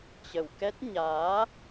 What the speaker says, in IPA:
t͡ɕ ə˨˩ w k ɛ˦˥ t̚ ɲ aː˨˦

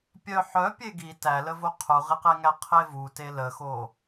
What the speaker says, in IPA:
pʲ œ ħ œ pʲ e ɡ i t æ l ə v o qʰ u ʁ i q e ŋ æ qʰ e v u t e l ə x o

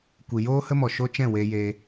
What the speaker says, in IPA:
kʷ i˨ j oː˦ h ə˦ m ɔ˨ ʃ o˦ t͡ʃ ɛ̃˦˨ w e˧ j e˧

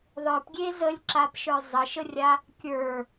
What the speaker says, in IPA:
ðˤ ə˞ p ɡʲ e z ə lʲ ǁ a p ʃ ə˞ zˤ ə ʃ ə rʲ a | kʲ ə˞

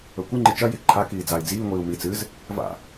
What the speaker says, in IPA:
ɵ kʷ ɨ ŋ͡ǃ ɨ t͡ʃ ɐ j i ǃʰ a k iː d͡z a i̯ d͡z iː ŋʷ iː u̯ m i t͡s ɨ z | v a̰

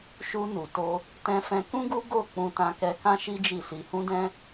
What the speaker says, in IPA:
ʃ u˧ n u˨ t o˧ | t ɛ̃˧ f ɛ̃˧ k ũ˦ ɡ u˦ ɡ o˦˨ k͡p ũ˧ t ã˧ k ɛ˧ k ã˦ ʃ i˦ d͡ʒ i˦˨ s i˧ h ũ˦ d ɛ̃˦

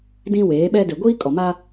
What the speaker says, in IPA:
d ĩ˦ w eː˨˦ ɓ ɛ˦ d e˨ ɡʷ iː˦ kʼ ɔ˨ m a˦

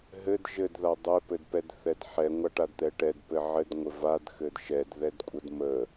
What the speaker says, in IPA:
ɦ ɘ d ʒ ɘ d ð a dˤ ɘ p ɘ d p ɛ d θ ɛ d ħ ɛ ŋʷ a ʈ a d t̪ ɛ ʈ ɛ d p ɘ ʕ ɘ d ŋʷ ɘ v a d x ɘ d ʃ ɛ d ð ɛ d kʷʼ ə d m ə

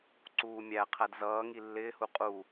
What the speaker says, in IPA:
ǀ uː mʲ æ qʰ æ d z ʌː ŋ i lː ɪː h u qʼ u

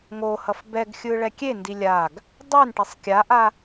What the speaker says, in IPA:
ŋ o h ʌ f b ɛ ɡ xʲ ɯ ɭ ɛ kʲ e n d i lʲ a ɡ | dˤ ɛ n ʈ e sˤ kʲ a ʔ a

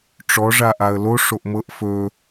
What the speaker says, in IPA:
ʈ͡ʂ ɔ ʐ a ʔ a ə̯ l o ʂ o ʔ m ɤ ʔ f ɵ

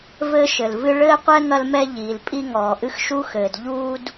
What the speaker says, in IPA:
v ɘː˥ ʃ ɘ˩ l v ɨ˥ ɭ ɘː˥ qʷ ɛ˥ ŋ ɐ˥ l m ɛ˥ ʎ iː˩ l pʼ i˥ ŋ ɔː˩ ʔ ɨ˥ x ʃ u˥ x ɘː˩ d ʎ uː˥ d

